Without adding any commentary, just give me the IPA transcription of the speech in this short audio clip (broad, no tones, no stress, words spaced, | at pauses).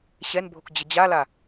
ɕɛnbʱok d͡ʑəd͡ʑala